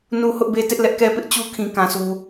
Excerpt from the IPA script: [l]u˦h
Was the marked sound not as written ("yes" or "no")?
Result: yes